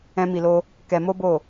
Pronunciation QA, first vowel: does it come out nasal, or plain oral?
nasal